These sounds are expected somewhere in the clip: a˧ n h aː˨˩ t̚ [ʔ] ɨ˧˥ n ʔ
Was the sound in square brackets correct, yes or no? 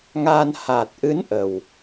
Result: yes